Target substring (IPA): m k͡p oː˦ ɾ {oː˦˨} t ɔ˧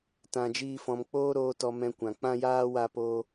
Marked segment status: incorrect: oː˧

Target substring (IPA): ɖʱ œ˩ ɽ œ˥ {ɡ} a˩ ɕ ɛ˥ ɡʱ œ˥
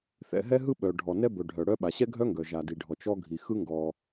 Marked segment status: incorrect: ɓ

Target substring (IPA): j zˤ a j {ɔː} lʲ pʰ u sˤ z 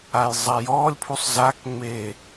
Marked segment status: correct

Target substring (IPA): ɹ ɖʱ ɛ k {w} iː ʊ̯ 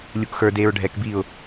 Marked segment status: incorrect: b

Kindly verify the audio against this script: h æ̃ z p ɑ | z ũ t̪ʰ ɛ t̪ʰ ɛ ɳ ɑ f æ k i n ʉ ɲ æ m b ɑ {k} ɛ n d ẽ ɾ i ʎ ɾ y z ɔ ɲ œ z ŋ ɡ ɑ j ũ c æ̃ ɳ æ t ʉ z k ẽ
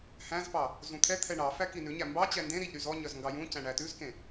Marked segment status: incorrect: t͡ɕ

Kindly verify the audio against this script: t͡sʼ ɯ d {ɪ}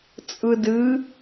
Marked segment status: incorrect: ɨ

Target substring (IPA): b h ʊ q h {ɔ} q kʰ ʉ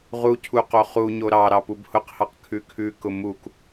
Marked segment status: incorrect: ɑ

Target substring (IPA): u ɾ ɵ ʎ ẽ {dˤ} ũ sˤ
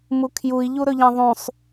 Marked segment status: incorrect: ðˤ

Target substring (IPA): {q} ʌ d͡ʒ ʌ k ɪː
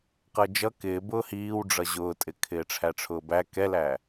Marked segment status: correct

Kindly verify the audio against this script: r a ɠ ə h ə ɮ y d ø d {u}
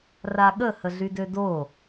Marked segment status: incorrect: o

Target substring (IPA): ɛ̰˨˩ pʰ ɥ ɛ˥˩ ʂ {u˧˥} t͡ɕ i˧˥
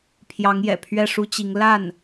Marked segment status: incorrect: u˥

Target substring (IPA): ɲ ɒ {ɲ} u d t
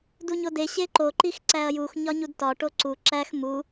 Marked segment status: correct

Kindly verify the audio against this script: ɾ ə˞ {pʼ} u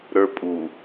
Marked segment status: correct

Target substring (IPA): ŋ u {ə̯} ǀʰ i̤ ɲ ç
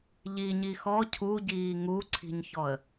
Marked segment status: incorrect: none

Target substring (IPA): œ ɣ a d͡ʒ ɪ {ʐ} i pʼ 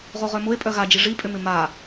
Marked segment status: correct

